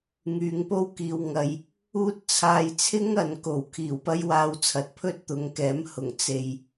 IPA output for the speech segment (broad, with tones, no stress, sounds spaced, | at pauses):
ŋ yː˨˧ ŋ p o˥ w k iː˨ w ŋ ɐ˨ j | uː˥ t̚ t͡sʰ aː˧ j t͡sʰ ɪ˥ ŋ ɐ˨ n k o˨˩ w kʰ iː˨˩ w p ɐ˥ j w aː˧ w t͡sʰ ɐ˨˥ t̚ pʰ ɵ˥ t̚ t̪ ʊ˨˥ ŋ k ɛː˨˥ m h ʊ˨˩ ŋ t͡s e˨ j